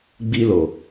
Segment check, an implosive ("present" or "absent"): absent